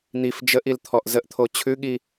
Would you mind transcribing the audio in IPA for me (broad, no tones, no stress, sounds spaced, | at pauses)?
n̪ i f d͡ʒ ə ʔ i l t̪ʰ ɔ ʔ z ə ʔ t̪ʰ o t͡ɕʰ ʉ ɠ i